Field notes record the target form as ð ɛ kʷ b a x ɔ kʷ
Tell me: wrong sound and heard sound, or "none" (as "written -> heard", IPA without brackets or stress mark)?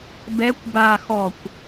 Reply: ð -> b